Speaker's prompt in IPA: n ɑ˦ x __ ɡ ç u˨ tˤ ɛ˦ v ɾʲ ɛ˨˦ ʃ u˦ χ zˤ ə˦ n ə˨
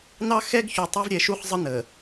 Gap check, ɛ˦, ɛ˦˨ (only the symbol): ɛ˦